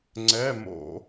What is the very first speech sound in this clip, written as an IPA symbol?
ŋ͡ǀ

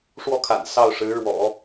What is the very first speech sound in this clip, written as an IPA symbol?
ʂ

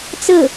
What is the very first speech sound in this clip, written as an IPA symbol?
t͡s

